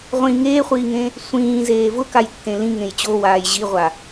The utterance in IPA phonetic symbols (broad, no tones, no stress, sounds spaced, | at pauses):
ʁʷ ĩ ŋ eː χʷ iː ŋ ẽ | sʷ ĩː z eː v ʊ k a j tː ẽ l ĩ ŋ ẽ j t͡ɕ o w aː j ʑ i ʁʷ a